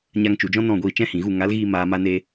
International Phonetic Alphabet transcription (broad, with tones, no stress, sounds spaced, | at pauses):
ɲ a˧ ŋ t͡ʃ u˨ d͡ʒ ɔ̃˦ n ɔ̃˦˨ ɡʷ iː˧ t͡ʃ ɛ̃˦ h ĩ˨ ɣ u˦˨ ŋ a˨˦ l ɣ iː˧ m aː˨ m a˧ n e˧